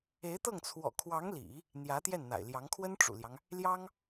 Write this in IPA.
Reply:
e˧˥ ɪ̯ t̪ ɤ˥˩ ŋ t͡sʰ w ɔ̰˨˩ kʰ w ɑ˧˥ ŋ l ḭ˨˩˦ | n̪ j ä˧˥ t̪ j ɛ˥˩ n n̪ a̰˨˩ ɪ̯ l j ɑ˧˥ ŋ kʰ w ə˥ n ʈ͡ʂ ṵ˨˩ l j ɑ˦ ŋ | l j ɑ˥ ŋ

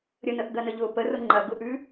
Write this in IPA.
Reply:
ɾʲ ə n ə ʔ ɡ ɐ n ə ʎ ʊ p ə r ʊ ŋ͡ǃ ɐ ɡ ʊ ʔ ʉ

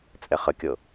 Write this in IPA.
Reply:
t͡sʼ ɛ χ ə kʲ ɤ

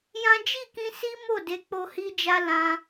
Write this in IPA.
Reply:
j ã˦ d͡ʒ i˦˨ k ĩ˧ s i˦ m o˦˨ d e˨˦ k͡p o˧ h i˦ d͡ʒ a˦ l ã˧

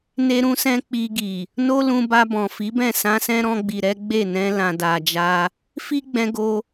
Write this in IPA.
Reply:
n e˧ ɾ ũ˧ s ɛ̃˧ k͡p i˧ ɡ i˨ | n o˦ l ũ˧ b a˧ b ɔ̃˨ f i˨˦ b ɛ̃˦˨ s ã˧ s ɛ̃˦ ɾ ɔ̃˧ ɡ͡b i˨ ɾ ɛ˨˦ ɡ͡b e˦˨ n ɛ̃˧ l ã˨ d a˨ d͡ʒ a˧ | f i˦ ɡ͡b ɛ̃˧ ɡ o˧

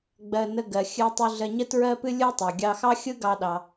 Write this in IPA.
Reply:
ɡ͡b ɜ˧ n ə˧ ɡ ɜ˩ xʲ ɨ˧ tˤ u˧ ɮ ɜ˧ ɲ ə˥ t ɹ ɜ˥ p ɨ˥ lʲ ɯ˥ tˤ ɑ˩ ɡʲ ɑ˧ x ɑ˥ xʲ ɯ˥ ɡ ɑ˧ ɗ ɑ˩

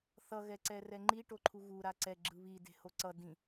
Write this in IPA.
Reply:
θ ʌ ɣ ɛ ǀ ɛ r ɛ ŋ͡ǃ i ʈ o ǃʰ u ɣ u ɾ a ǀ ɛ ɡ͡ǁ ɯ β i d e̤ h o ǀ ʌ d ĩ

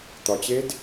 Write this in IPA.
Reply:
t̪ ɒ t͡ɕ eː d

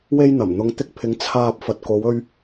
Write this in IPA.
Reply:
w e˥ j n̪ ɐ˨˩ m n̪ ʊ˨˧ ŋ t̪ ɪ˧ k̚ pʰ ɪ˨˧ ŋ t͡sʰ aː˧ p̚ f ɐ˨ t̚ k o˨˧ w ɵ˧ ɥ

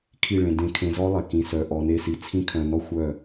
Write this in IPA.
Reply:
kʰ i˦˨ ɭ ẽ˨ d ẽ˧ kʰ ẽ˧ z ɔ˦ lˠ e˨ k ĩ˧ s œ˧ ʔ ɔ˧ n e˦ s i˧ t͡sʰ ĩ˦ kʰ œ̃˧ n ɔ˦ xʷ œ˦˨

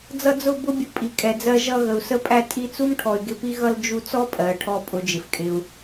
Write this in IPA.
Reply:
d͡z ʌ˧ d͡z ʊ˦˨ b ʊ˦ bʲ ʊ˧ pʼ i˨ kʼ ɛ˨ d͡z ɜ˧ ʒ ʌ˧ ɣ ə˨ u̯ s ə˧ pʼ æ˧ tʼ i˧ t͡s u˦ m ʈʰ ɔ˨ y̯ ɡ ɪ˧ p i˦ ɣ ʌ˦ l d͡ʒ u˧ t͡s ɔ˦ pʼ ɜː˨ ʈʰ ɔ˧ pʼ ʊ˨˦ d͡ʒ ɪ˨ f kʼ ɪ˧ u̯

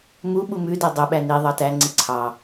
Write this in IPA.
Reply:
m u ɓ u m ʉ d œ dˤ u ɓ æ n i ðˤ ɑ t æ ŋ͡ǀ i ǀʰ ɑ

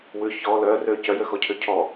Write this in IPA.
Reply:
w ʉ ç ɔ l œ r ø c œ j ø x ɔ cʰ ø cʰ ɔ

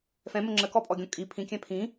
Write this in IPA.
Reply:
f ɛ̃ m ə ŋ͡ǁ ə k ɔ pʼ ɔ ɡʲ ɔ̃ kʼ i pʰ ĩ kʲ ɛ̃ pʰ ĩ

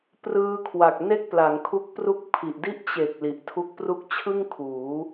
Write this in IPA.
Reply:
p r ɯː˧ kʰ w a˨˩ k̚ n e˥˩ k̚ p l a˩˦ ŋ kʰ u˦˥ k̚ p r u˥˩ k̚ pʰ i˨˩ ʔ d i˥˩ ʔ t͡ɕ e˨˩ k̚ l i˨˩ ʔ tʰ u˦˥ k̚ p r u˥˩ k̚ t͡ɕʰ ɯ˥˩ ŋ kʰ uː˩˦

